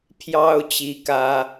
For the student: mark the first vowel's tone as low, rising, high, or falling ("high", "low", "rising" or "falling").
high